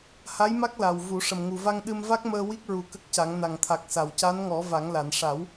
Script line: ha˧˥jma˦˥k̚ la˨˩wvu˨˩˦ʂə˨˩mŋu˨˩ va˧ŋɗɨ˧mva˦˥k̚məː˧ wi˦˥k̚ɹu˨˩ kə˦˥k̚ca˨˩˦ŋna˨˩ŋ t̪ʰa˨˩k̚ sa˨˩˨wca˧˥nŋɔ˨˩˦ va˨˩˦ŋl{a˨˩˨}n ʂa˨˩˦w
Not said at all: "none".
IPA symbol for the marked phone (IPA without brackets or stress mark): a˨˩˨